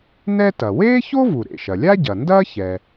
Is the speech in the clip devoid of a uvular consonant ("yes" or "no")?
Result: yes